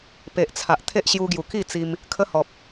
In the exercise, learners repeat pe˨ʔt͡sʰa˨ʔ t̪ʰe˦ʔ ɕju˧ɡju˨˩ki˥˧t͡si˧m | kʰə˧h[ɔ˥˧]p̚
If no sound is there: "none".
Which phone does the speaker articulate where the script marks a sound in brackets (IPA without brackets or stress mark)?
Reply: ɔ˨